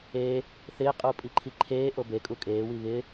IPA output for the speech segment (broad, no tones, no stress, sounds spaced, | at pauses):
e | θ ɪː qʼ uː pʼ i ǃʰ i ǃʰ eː ʔ o b e kʼ u kʼ eː w i β ɪ